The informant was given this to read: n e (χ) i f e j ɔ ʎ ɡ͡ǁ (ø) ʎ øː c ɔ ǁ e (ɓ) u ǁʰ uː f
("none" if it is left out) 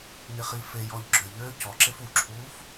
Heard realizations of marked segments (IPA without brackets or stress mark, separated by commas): χ, ø, f